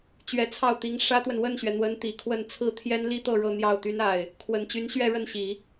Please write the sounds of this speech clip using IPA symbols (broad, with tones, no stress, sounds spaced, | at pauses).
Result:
t͡ɕ ɥ ɛ˧˥ t͡sʰ ɑ˥˩ ʊ̯ t̪ i˧˥ ŋ ʂ ä˥ t̪ w ə˨ n w ə˥˩ n ɕ ɥ ɛ˩ n̪ w ə˧˥ n t̪ i˨˩ kʰ w ə˥˧ n t͡sʰ ɹ̩˥˩ t̪ʰ j ɛ˥ n l i˥ t̪ ɤ˥˧ ɻ ɤ˥˧ n̪ j ɑ˥˩ ʊ̯ t̪ y˥ n a˥˩ ɪ̯ | kʰ w ə˨˩ n t͡ɕ y˧˥ n ɕ ɥ ɛ˥˧ ɻ ə˥˩ n ɕ i˨˩˦